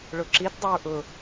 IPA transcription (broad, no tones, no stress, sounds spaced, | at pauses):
ɭ ʊ ǁ i t dˤ ʊ ɹ ʔ ʊ